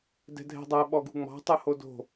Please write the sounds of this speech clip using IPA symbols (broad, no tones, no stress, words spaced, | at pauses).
dɛ̤dʱɛ̤dˤæ ɓɔɡṳŋ͡mɑ̤ tˤuhodo̤